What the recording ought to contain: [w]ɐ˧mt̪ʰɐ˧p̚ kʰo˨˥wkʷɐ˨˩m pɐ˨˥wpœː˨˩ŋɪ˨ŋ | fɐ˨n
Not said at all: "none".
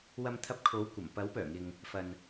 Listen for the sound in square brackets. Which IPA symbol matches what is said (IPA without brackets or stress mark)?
w